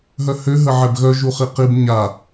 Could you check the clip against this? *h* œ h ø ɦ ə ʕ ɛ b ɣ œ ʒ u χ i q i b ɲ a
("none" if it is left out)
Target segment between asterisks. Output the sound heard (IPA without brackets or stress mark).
ɦ